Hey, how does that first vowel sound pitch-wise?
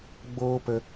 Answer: high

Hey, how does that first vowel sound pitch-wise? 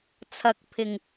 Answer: rising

